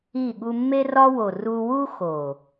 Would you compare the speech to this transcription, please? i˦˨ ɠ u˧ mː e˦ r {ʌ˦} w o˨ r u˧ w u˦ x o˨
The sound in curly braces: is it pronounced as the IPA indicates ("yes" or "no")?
no